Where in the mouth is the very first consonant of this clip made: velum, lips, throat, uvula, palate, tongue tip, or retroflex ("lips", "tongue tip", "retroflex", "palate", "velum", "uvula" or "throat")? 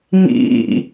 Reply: velum